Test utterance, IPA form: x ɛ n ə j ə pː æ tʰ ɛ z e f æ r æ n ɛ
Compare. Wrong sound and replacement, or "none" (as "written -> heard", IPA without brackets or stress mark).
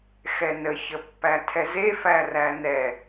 j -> ç